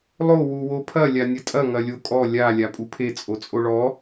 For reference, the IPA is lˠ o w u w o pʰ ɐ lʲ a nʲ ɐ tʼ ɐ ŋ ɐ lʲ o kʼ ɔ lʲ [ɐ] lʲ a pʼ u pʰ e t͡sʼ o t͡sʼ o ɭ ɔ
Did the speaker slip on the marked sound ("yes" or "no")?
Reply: yes